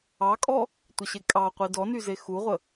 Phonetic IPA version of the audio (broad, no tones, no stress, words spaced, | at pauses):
ɑkʼɔ | tʷəɕekʼɑqʷi dɔny zexuʁʷə